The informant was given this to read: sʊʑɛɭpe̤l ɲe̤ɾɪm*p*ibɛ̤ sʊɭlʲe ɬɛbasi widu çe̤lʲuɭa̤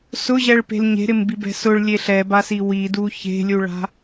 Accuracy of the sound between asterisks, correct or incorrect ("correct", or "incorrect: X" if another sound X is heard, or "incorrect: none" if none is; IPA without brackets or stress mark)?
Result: incorrect: b